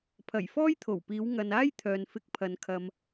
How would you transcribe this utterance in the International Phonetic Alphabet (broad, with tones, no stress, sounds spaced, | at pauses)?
pʰ ɐ˨˩ j f ɔː˥ j t̪ʰ o˨˩ w p iː˨˧ w ŋ ɐ˨ n aː˥ j t̪ʰ œː˨ n f ɪ˧ k̚ pʰ ɐ˨ n kʰ ɐ˨ m